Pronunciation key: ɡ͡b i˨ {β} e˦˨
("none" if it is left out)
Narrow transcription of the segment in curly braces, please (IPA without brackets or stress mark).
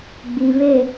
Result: β